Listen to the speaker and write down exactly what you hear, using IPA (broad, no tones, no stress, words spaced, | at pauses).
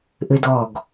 ʔɘdɔɡ